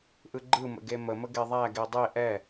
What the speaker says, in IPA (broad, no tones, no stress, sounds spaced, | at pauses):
ʔ ɯ ɡ͡ǃ ɯ m ə̰ ɡ e m ə m ə ɡ e ðˤ æ ɡ e dˤ e ʔ ɛ